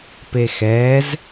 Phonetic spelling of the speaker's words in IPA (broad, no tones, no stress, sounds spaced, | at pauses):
p e x ɛː z